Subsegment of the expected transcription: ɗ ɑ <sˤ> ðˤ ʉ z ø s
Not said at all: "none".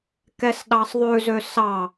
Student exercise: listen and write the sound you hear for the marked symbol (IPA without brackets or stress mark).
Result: sˤ